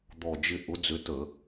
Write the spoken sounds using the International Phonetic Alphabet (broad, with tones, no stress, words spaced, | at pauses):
d̪ɔ˦˨d͡ʒɪ˥ ʔʊ˨˦d͡zʏ˨˦tə˧˩˧